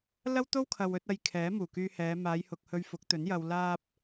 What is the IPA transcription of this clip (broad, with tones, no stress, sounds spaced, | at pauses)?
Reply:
l ɐ˥ w t̪ o˥ w kʰ ɐ˨ w ɵ˨˥ t̚ ɐ˧ j kʰ ɛː˨˥ m uː˨˩ k yː˧ h ɛː˨˧ m aː˨˧ j h ʊ˨ k̚ h ɵ˧ ɥ f ʊ˨˥ k̚ t̪ ɵ˨˥ n j ɐ˨ w l aː˧ p̚